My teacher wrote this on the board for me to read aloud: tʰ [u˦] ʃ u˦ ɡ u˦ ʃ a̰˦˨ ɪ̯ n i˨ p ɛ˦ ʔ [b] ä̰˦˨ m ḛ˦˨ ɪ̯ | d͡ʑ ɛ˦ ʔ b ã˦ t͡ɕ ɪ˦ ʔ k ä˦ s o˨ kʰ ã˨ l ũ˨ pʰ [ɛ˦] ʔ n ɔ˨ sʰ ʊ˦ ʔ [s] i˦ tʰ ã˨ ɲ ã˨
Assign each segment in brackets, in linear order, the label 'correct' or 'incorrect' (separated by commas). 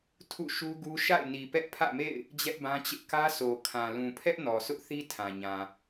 incorrect, incorrect, correct, incorrect